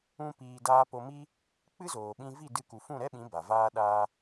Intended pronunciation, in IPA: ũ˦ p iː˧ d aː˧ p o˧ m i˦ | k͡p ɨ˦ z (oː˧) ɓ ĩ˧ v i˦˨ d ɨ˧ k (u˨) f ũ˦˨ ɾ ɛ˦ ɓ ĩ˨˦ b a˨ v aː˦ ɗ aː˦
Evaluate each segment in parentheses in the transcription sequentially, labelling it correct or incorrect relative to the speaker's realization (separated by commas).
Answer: incorrect, correct